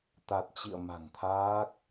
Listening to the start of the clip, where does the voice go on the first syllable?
low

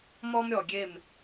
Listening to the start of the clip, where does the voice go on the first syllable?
high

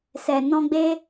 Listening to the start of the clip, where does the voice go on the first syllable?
low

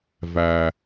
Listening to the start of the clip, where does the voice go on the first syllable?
low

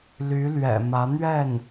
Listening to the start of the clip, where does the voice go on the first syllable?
rising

